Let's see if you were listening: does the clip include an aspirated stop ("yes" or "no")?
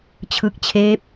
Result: yes